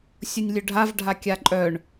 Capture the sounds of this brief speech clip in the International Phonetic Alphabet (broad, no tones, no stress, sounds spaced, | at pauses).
sʲ ʊ nʲ lʲ ɵ ɖʱ a v ɖʱ a kʲ a ǃʼ œ ɳ